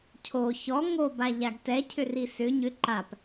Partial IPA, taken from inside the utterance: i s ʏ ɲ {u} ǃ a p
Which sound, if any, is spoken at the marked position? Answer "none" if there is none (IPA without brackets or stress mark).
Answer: ʏ